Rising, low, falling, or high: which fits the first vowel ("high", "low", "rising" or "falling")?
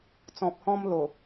low